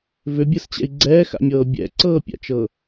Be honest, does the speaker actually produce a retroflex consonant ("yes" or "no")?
no